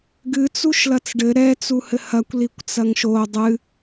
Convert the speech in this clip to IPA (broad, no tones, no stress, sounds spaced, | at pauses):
ɡ ɨ t͡s u ʃ l ɐ t͡s ɖ ɘ ɾ ɛ t͡s u h ɘ h ɐ kʷ l i kʷ t͡s ɐ ŋ ʃ o dˤ ɨ